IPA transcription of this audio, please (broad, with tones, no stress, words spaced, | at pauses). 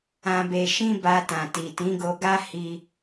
ã˨be˨ʃĩ˧ ba˧tã˨ti˨ tĩ˨˦ɡo˧ ɡa˦hi˧